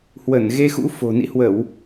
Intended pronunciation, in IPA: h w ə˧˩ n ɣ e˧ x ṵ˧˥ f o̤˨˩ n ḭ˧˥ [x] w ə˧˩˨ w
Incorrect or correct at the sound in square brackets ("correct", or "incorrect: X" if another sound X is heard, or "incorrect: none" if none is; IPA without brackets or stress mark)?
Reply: incorrect: h